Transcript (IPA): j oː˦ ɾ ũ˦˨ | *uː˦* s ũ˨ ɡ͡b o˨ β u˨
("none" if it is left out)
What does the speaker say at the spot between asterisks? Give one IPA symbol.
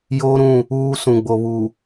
uː˦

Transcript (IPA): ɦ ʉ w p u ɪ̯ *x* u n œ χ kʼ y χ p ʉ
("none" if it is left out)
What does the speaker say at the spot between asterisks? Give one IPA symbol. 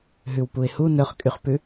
h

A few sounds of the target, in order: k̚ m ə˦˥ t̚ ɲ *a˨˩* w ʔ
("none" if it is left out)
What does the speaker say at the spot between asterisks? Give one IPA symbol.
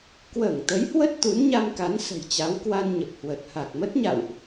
a̰˧˨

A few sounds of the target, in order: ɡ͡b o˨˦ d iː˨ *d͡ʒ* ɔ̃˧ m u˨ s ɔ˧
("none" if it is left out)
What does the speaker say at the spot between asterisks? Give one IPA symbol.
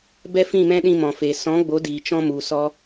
t͡ʃ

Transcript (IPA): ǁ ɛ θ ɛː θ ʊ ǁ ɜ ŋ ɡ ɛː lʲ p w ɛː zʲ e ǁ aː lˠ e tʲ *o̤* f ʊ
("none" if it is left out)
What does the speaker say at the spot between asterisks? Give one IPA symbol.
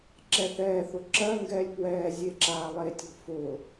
o̤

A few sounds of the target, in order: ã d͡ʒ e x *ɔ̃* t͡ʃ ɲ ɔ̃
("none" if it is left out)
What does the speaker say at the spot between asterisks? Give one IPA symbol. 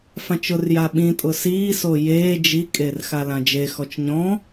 ɔ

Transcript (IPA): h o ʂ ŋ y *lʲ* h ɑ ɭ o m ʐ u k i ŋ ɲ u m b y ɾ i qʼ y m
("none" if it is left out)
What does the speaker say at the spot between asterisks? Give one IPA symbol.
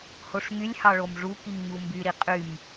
lʲ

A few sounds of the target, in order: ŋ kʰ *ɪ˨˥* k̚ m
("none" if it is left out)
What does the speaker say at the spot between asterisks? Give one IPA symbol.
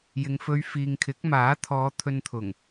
ɪ˨˥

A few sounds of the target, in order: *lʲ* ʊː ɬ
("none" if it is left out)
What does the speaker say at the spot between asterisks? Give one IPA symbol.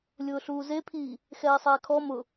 lʲ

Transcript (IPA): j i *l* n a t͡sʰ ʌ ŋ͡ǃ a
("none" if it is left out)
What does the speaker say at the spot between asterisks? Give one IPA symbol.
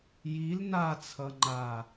l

